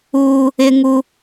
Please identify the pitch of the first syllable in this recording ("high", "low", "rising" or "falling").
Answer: high